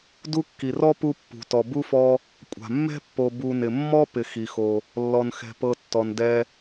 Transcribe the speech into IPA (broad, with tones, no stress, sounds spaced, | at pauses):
d u˦ kː i˩ r ɔ˥ p u˦ pː ṳ˩ t ɔ˩ b u˥ f ɔ˦ | kʷʼ a̤˩ mː ɛ̤˥ pː o˨ b u˨ n ɪ˩ mː ɔ˥ p ɪ˨ x i˩ x o˨ | lː ɔ˨ n x ɛ̤˨ p ɤ˦ tː ɔ˨ n d ɛ˥